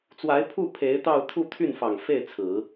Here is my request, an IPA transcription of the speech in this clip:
t͡swa˧˥ɪ̯pʰu˥˩ pʰe˧˥ɪ̯t̪ɑ˥˧ʊ̯ t̪ʰu˥˧t̪ʰy˥˩n fɑ˨˩ŋ fe˥˩ɪ̯ t͡sʰɹ̩˨˩˦

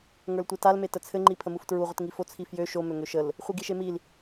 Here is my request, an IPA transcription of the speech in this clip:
ŋə˞ltʷetal metət͡sʰɘ ŋ͡ǃipʰəmuftɹu ʁʷətŋifo t͡sʰifjø ʃo møŋøʃəl | χʷiɡiʃemil

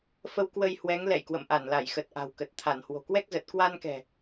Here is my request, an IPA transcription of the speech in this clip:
fə˧wkwə˧j hwɛ˨˦ŋlɛ̰˧˨jkwə̰˧˨m ʔa˧˩nla˧˩jxə˨˩t̚ ʔa̤˨˩wkə˨˩t̚t̪ʰa˧˩n hwo̤˨˩kwɛ˦˥k̚zə˨˩t̚ kwa˧nkɛ̤˨˩

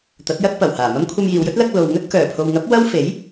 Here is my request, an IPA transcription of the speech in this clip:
t̪ɐ˨˥t̚jɐ˥t̚ pɐ˨˩whaː˨˩mɐ˥m kʷʰɐ˧mjiː˨wjɵ˥t̚ lɐ˥k̚ lo˨wŋɵ˥t̚kœː˨˩ pʰo˨wŋɐ˨˥p̚ wɐ˥w fe˨˥j

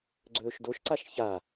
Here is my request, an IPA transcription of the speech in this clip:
ɡ͡ǀɵːʃdoʃǀaʃ ça

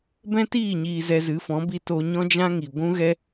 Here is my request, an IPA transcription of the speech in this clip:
bɛ̃˦tiː˦˨ ɲiː˧zɛ˧zɨ˨˦fɔ̃˨˦ bi˧ to˦ ɲɔ̃˦d͡ʒã˦ŋi˨ ɡʷũ˦ɣɛ˦

